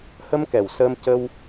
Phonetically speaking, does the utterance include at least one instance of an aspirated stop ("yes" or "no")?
no